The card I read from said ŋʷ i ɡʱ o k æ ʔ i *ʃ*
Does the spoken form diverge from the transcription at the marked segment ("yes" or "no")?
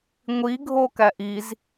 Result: yes